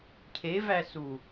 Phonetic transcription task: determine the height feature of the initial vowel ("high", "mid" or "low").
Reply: mid